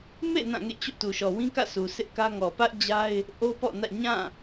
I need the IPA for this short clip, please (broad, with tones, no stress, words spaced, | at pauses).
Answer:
mḛ˦˨ nã˦˨ŋḛ˦˨t͡ɕo̰˦˨ tu˨ʃɔ˨wĩ˦kä̰˦˨ sʰu˨sɪ˦ʔkä˦ ŋɔ˨pä˦ʔd͡ʑa˦ɪ̯ | ʔo˦pɔ̰˦˨nä̰˦˨ ɲã˦˨